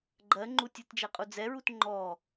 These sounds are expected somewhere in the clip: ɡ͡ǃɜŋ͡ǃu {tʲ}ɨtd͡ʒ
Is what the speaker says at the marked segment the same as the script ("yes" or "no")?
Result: yes